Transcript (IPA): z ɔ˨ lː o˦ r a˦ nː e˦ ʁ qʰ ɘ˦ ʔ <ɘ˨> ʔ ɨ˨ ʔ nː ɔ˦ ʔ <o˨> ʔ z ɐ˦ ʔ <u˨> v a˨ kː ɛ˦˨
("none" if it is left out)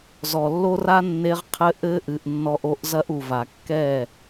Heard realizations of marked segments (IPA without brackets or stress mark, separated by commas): ɘ˦, o˦, u˨